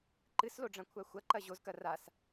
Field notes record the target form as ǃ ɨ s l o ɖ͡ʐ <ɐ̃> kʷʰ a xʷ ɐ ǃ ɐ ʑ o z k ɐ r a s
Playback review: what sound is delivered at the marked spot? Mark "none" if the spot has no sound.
ɐ̃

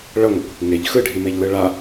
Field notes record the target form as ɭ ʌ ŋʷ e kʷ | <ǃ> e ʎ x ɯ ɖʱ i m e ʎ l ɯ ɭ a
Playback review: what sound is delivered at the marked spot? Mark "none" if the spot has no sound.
ŋ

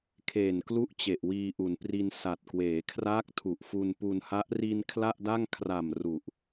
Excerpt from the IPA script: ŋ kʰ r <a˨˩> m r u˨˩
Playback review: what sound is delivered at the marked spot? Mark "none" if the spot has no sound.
a˨˩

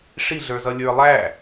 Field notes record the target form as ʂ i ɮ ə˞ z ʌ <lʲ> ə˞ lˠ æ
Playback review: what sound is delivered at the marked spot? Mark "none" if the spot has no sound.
lʲ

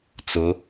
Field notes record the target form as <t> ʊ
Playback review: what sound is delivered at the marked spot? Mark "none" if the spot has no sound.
t͡s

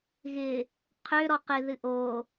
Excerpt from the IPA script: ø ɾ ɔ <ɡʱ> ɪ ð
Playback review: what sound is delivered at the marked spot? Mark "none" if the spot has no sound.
q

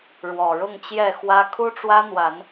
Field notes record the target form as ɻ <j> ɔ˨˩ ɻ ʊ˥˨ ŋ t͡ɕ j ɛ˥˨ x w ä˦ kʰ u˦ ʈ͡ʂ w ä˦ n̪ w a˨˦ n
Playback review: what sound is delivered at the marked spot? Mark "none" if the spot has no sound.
w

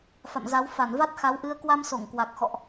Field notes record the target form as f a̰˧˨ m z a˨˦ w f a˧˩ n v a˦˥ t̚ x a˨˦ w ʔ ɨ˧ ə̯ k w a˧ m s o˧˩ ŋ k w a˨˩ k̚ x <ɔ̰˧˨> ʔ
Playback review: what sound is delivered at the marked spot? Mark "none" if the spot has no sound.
ɔ̰˧˨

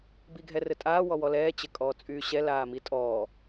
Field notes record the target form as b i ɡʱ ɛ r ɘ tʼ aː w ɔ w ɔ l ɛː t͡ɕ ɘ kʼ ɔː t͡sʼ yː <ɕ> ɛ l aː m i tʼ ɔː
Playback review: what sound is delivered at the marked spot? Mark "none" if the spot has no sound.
ɕ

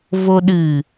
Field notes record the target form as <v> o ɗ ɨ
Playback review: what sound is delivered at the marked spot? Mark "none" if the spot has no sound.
v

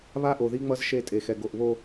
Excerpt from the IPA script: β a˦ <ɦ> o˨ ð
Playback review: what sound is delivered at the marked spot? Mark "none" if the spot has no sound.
ʔ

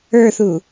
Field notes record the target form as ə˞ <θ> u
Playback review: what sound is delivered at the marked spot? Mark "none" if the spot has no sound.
θ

